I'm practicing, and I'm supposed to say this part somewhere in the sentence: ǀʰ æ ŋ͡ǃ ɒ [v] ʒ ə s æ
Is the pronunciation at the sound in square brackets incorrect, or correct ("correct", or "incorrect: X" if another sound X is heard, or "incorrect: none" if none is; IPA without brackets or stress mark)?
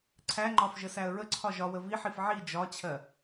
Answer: incorrect: f